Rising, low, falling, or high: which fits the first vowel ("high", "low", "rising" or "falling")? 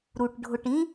low